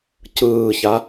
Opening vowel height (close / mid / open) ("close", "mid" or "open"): close